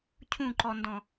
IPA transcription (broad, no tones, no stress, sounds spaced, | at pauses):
cʰ ũ ǃ ɔ n d ɔ̃